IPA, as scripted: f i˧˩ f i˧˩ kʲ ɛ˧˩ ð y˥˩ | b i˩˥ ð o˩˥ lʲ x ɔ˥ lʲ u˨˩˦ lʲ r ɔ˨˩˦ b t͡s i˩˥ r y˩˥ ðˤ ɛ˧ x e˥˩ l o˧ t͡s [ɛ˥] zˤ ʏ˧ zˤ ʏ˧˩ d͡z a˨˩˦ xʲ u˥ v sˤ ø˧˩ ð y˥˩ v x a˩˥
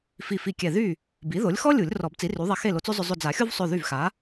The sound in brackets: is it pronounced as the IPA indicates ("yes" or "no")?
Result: no